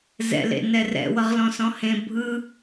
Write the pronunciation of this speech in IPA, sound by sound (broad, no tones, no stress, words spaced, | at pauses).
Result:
zɛ̰lḛ nɛrɛ̰ wʌʁlɔ̃sɔ̃hẽ bʱɯ